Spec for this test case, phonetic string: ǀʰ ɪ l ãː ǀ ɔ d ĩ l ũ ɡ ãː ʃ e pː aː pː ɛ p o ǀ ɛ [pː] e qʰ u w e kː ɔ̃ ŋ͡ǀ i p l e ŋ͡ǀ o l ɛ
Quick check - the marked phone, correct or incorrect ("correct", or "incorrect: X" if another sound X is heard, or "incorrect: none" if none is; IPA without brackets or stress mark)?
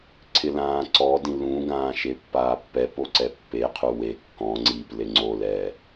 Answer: correct